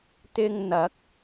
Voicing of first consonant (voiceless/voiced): voiceless